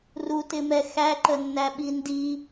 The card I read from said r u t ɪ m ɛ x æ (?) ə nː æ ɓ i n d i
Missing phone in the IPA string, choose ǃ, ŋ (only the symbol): ǃ